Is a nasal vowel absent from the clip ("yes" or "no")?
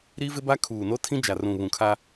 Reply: no